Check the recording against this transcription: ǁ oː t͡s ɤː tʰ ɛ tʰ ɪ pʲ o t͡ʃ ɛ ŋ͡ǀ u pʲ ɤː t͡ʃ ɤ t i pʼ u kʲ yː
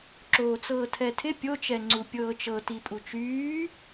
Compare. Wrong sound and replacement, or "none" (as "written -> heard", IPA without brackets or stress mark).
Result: kʲ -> t͡ʃ